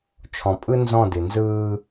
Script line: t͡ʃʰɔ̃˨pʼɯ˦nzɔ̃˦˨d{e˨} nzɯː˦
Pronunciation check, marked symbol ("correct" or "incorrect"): incorrect